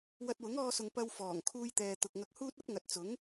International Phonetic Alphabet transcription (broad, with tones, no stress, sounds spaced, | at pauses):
w ɐ˧ t̚ w ʊ˨˥ ŋ ɔː˧ s ʊ˨ ŋ p ɐ˧ w f ɔː˨˩ ŋ kʰ uː˧ j t̪ ɛː˨ t̪ ʊ˨ k̚ ŋ ɐ˧ k̚ h uː˥ t̚ ɐ˥ p̚ ŋ ɐ˨ t̚ t͡s ʊ˨˥ ŋ